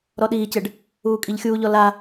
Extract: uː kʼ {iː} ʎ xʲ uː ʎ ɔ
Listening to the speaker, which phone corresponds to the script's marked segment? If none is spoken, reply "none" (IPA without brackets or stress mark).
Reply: i